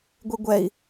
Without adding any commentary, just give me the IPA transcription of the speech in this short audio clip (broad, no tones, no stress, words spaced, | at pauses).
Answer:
ɡʷeɡʷɛi̯